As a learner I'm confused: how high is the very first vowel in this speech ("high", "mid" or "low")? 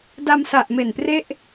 low